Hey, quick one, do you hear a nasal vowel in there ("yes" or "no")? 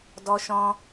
yes